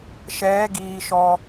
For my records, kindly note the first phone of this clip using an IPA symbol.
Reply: ʃ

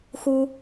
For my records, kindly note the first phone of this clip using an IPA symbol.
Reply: x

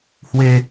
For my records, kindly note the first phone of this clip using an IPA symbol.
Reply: h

